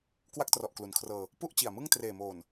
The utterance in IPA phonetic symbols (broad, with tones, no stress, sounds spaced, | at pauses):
k w a˥˩ k̚ t r ɔ˨˩ ʔ k l u˩˦ n kʰ r ɤː˧ | p u˥˩ ʔ t͡ɕ i˨˩ a̯ m ɯ˥˩ ŋ t r eː˨˩ m oː˨˩ n